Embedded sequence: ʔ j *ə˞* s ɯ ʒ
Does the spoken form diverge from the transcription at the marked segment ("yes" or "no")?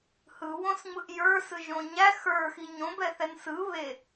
no